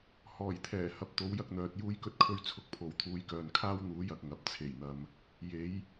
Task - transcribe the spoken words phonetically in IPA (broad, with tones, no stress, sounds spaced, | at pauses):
h ɔː˨˩ j t̪ʰ ɛː˨˩ h ɐ˧ p̚ t̪ o˨˥ w j ɐ˧ k̚ n̪ œː˨ t̚ j uː˥ j k ɵ˥ t̚ kʰ ɵ˥ ɥ t͡sʰ ʊ˧ k̚ pʰ o˨ w t̪ʰ uː˧ j k œː˨ n kʰ aː˥ w n̪ uː˨˥ j ɐ˨ k̚ ŋ ɐ˨˥ p̚ t͡sʰ e˨˩ j n̪ ɐ˨ m | j e˨˥ j